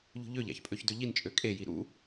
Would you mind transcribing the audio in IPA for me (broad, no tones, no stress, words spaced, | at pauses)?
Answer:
ʎṳʎøʎæ̰ç pʼøçdøʎint͡ʃʼø kʼeji ɾṵ